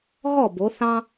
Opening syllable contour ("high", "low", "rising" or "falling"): falling